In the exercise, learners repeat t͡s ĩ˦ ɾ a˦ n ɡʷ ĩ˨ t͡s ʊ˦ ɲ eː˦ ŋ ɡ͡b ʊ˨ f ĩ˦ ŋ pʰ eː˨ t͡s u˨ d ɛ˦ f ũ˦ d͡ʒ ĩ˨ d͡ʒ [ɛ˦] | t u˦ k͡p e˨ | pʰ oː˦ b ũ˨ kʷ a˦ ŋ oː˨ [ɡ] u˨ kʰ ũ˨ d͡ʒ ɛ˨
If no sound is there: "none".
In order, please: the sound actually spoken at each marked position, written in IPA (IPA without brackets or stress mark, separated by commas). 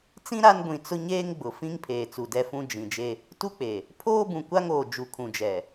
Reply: e˦, d͡ʒ